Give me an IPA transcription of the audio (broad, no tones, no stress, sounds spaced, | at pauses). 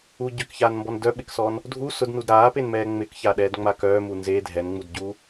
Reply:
u ɟ ø k ç aː n m b ɔ n d œ ɓ ɪ k s ɔ n | dʱ u s ʊ d n u d ɾ aː p e n m ɛː ŋ͡m ɪ k ç a ɗ ɛː d ŋ͡m a k œː m u n z e dʱ ɛ n ŋ͡m u d ɟ u